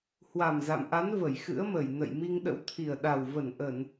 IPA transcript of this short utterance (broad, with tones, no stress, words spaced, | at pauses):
hwa˨˩mza̰˧˨mʔa˨˦n və˧˩jxɨ̰˧˥ə̯mə˧˩j nə̰˧˨j mi˧ŋɗə̰˧˥wt̪ʰi˨˩ə̯ɗa˨˩w və˧˩nʔə˧˩˨n